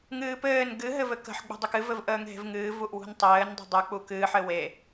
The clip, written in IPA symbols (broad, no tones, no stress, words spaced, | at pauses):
ŋɨːpɘːn ɡɨ ɦɘvɘkə̤ħ ɡ͡bṳdˤɵkɨ vɘvʔəːŋɦe̤vŋɨː vuʔwṳntˤɘːn dˤṳdˤu k͡pukɨːħ ɘwe